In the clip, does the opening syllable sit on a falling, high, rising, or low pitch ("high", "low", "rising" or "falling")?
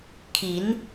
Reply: rising